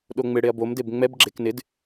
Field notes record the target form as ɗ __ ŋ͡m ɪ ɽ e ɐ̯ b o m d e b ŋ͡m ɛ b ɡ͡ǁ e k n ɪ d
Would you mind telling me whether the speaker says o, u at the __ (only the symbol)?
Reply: o